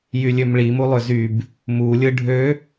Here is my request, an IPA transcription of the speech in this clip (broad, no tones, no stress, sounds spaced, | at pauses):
j y lʲ ø m ɭ i m u lˠ ø z y b | m u lʲ ɯ ɖʱ ø